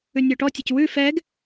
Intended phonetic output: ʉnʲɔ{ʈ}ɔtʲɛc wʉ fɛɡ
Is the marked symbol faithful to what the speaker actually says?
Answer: yes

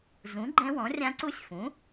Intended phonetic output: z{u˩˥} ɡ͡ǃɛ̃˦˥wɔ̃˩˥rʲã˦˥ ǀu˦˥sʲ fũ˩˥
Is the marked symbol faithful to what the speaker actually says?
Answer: no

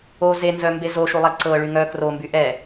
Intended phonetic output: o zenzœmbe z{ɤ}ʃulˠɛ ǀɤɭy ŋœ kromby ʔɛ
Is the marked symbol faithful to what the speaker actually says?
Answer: no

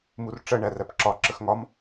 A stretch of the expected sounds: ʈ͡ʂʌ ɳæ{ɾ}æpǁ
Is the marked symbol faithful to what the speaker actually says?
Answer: no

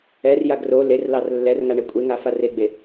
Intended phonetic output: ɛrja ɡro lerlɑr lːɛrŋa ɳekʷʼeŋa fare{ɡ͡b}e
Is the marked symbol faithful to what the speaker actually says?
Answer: yes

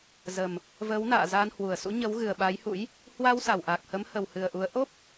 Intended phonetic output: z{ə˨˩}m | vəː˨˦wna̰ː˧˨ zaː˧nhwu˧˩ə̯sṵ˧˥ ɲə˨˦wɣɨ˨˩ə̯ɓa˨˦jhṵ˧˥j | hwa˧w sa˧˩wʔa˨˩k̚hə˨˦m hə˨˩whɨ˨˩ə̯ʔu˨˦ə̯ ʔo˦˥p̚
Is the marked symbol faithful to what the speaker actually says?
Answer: yes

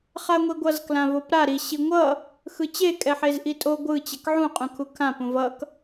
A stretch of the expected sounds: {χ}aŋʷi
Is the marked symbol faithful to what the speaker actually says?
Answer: yes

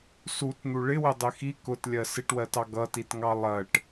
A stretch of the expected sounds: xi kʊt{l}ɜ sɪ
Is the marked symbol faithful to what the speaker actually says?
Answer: no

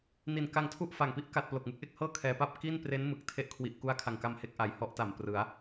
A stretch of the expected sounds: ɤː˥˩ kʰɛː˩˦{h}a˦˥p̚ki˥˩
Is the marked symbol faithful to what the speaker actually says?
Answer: no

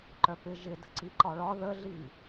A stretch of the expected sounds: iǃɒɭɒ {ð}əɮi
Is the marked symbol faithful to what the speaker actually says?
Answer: yes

